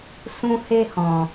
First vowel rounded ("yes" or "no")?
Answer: yes